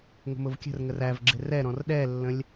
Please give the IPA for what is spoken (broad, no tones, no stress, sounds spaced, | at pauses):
ŋ ə̤ m ʊ v kʲ ə̤ r ŋ ə r æ v ɡ͡ǁ ɪ r ɛ ɾ ɔ̃ r ɗ ɛ lː ə̃ lʲ